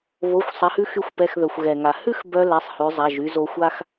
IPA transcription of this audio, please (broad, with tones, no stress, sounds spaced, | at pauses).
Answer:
β o˩˧˩ xʷ sˤ ɛ˩˧ h ʉ˧ x y˧ xʷ p ɛ˩˧˩ x ð œ˩ xʷ ɣ ɛ˩ ŋ a˩ h ʉ˥ x b œ˧ l ɛ˩˧˩ sˤ h ʉ˩˧ zˤ a˩˧˩ ʒ y˧ z o˧ xʷ a˥ x